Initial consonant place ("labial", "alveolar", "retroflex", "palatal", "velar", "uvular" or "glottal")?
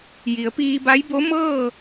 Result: palatal